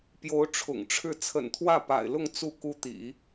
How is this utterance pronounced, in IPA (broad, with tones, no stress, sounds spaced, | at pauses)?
p j o˧˥ ʊ̯ ʈ͡ʂʰ ʊ̰˨˩ ŋ ʈ͡ʂʰ ɻ̩˥˩ t͡sʰ ə̰˨˩ n t̪ʰ w ä˥˩ p a̰˨˩ ɪ̯ l ʊ˥˧ ŋ t͡s u˥˩ k u˥ t̪ ḭ˨˩˦